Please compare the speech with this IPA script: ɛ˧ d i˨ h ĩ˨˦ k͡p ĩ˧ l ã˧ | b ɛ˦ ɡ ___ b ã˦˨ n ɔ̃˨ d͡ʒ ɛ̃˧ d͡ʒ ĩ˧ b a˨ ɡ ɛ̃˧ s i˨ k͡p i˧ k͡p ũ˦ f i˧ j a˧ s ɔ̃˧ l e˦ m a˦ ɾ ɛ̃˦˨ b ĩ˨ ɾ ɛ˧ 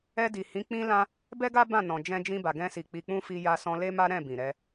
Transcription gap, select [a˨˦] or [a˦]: a˦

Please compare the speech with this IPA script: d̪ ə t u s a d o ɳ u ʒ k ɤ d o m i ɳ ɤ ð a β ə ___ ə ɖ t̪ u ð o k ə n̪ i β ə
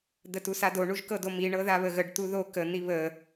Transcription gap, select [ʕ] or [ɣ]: ɣ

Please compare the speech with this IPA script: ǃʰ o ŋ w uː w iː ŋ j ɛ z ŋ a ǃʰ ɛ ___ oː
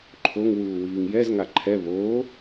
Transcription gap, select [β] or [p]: β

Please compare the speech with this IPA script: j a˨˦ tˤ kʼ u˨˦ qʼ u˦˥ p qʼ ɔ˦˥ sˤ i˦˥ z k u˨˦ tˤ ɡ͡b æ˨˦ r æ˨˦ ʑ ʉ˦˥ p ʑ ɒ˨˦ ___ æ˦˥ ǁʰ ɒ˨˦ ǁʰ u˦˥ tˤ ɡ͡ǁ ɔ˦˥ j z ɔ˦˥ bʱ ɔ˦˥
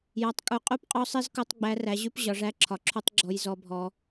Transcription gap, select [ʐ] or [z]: ʐ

